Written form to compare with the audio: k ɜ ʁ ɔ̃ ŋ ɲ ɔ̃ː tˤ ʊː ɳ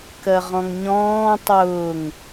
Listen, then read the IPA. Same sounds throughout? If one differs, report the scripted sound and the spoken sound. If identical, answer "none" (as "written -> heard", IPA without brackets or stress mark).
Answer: ɳ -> ŋ